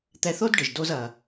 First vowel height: mid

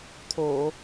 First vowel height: mid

